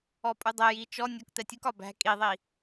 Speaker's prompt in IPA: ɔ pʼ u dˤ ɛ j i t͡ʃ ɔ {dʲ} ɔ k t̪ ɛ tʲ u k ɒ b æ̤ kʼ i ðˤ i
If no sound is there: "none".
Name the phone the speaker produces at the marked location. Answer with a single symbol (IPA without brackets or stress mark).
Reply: nʲ